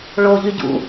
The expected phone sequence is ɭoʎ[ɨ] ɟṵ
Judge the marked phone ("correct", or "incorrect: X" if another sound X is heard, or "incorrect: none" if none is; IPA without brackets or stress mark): incorrect: y